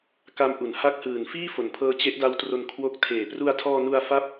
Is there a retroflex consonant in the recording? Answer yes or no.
no